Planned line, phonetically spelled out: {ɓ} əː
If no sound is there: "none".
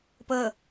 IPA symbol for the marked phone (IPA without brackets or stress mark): p